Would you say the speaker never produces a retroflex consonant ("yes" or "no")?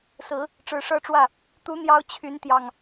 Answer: no